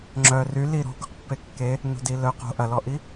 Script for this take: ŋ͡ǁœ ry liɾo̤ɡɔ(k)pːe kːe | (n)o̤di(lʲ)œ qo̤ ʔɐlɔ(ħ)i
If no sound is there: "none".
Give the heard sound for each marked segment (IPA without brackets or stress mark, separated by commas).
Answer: q, n, l, ʔ